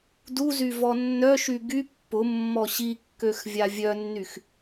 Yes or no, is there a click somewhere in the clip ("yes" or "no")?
no